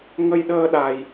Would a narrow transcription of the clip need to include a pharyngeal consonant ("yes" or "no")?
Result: no